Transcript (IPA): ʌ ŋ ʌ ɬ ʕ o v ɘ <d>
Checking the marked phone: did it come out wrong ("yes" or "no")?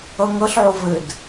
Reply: no